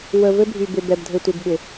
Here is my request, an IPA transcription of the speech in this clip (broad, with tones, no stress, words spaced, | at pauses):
wə˨vɘ˦bʱy˨ bɪ˨bɛ˨bdʱɘ˨tʷɪ˨b ɓɪ˨